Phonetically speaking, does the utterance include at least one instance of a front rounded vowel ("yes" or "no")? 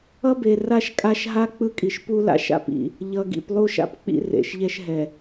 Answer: no